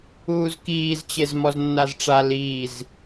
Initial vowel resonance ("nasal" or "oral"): oral